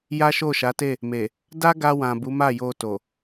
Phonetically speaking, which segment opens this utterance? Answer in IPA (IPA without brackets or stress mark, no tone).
j